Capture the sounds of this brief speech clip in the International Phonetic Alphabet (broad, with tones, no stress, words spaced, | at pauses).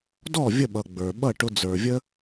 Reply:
dɔ˥˩ vʲə˥˩ɓʌ˩ ɡ͡bə˞˩ ɓʌ˥˩ʈʊ˧d͡zə˞˩vʲə˥